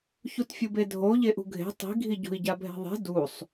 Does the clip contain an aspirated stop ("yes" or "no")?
no